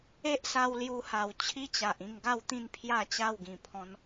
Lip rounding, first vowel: unrounded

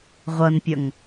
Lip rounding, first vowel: unrounded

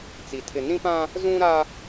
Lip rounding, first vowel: unrounded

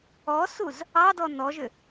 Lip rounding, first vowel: rounded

